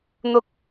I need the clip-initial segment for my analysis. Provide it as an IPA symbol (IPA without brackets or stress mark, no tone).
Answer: n̪